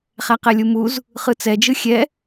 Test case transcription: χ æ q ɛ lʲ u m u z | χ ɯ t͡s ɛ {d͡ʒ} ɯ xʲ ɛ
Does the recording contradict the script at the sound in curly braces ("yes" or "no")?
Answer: no